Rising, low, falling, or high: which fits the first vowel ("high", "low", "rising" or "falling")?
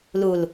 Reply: low